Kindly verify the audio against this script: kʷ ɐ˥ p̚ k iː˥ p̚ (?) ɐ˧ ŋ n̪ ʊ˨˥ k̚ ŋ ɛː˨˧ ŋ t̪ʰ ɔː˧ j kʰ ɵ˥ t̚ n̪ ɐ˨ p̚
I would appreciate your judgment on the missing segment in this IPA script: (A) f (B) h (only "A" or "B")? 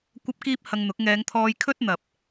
B